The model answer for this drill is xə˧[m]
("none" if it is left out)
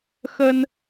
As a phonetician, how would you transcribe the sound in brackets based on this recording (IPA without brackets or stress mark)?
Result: n